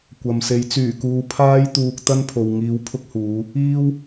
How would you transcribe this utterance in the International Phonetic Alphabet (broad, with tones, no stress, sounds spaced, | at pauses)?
kʷ ɐ˨ m s e˨˧ j t͡s yː˨˩ k uː˨ pʰ aː˥ j t̪ uː˧ k̚ t̪ ɐ˥ n pʰ o˨ w ŋ iː˨˧ w pʰ ʊ˥ k̚ h uː˨˧ | iː˥ w